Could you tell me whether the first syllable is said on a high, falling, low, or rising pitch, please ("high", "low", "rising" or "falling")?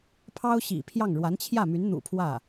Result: high